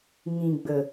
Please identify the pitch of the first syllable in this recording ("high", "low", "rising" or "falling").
low